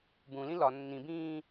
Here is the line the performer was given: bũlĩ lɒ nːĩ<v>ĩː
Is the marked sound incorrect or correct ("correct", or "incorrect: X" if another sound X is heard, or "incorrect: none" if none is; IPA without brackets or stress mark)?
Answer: incorrect: b